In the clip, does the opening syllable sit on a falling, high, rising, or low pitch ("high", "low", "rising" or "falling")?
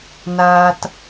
low